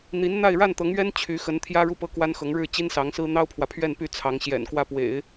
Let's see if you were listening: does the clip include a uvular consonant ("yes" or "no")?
no